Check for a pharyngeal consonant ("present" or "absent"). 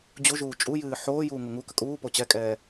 present